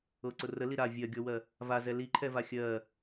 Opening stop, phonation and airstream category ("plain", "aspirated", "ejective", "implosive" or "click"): click